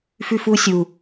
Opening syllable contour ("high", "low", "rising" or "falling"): high